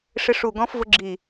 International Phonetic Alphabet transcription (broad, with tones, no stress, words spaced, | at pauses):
ʂɪ˧˥ʂu˧˩ɡɔ̃˧˥fvʊ˧˥ ɡ͡ǁi˧˩